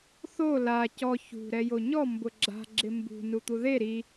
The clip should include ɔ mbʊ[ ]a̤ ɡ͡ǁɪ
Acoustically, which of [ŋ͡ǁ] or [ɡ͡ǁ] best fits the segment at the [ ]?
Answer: ɡ͡ǁ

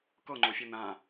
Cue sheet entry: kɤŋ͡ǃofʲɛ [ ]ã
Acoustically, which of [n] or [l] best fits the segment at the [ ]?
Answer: n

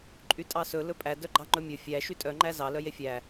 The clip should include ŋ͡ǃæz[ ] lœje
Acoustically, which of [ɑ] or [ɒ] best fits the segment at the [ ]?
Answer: ɑ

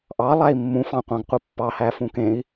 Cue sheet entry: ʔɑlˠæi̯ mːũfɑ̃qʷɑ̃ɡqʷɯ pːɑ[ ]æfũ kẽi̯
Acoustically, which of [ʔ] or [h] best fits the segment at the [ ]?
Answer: h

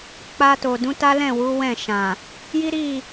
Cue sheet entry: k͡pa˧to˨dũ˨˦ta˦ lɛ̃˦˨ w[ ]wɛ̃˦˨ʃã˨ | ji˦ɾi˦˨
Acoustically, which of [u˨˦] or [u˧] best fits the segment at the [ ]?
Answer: u˨˦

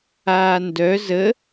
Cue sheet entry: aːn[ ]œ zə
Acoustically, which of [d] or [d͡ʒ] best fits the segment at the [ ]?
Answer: d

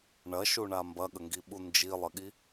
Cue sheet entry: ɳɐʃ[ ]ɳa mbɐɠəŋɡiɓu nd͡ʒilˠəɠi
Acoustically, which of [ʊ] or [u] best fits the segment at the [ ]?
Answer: u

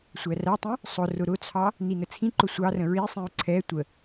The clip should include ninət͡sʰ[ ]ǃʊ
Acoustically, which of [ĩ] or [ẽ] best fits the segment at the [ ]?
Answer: ĩ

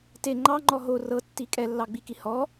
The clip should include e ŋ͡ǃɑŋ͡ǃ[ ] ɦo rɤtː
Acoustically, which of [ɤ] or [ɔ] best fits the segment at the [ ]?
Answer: ɔ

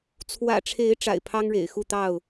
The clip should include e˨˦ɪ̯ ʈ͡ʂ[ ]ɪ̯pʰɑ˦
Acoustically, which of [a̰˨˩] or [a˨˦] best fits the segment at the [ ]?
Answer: a̰˨˩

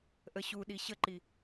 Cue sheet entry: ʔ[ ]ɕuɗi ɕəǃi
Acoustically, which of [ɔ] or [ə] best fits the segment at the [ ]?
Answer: ə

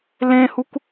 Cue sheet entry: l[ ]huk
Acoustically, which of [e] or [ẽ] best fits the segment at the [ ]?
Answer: ẽ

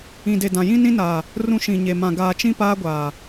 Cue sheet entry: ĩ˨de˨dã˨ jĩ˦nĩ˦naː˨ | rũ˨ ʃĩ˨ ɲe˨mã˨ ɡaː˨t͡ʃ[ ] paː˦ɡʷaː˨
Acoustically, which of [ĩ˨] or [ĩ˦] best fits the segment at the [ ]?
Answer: ĩ˦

